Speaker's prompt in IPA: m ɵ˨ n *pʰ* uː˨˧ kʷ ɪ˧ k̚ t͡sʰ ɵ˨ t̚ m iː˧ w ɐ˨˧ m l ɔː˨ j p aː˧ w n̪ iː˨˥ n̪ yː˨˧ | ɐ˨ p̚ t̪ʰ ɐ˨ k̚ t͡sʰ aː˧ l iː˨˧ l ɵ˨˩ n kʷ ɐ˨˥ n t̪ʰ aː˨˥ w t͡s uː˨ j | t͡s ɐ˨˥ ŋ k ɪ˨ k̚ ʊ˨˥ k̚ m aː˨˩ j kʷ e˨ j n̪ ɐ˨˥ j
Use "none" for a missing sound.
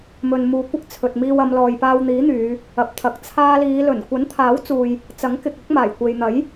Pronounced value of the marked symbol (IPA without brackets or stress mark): m